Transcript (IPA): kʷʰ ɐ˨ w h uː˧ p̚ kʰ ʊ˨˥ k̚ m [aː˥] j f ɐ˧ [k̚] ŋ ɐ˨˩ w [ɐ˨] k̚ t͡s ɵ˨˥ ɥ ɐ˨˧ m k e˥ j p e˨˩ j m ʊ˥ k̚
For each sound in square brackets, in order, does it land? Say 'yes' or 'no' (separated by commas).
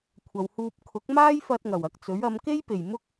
yes, no, yes